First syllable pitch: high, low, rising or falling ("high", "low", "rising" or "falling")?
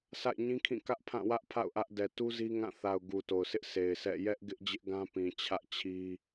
falling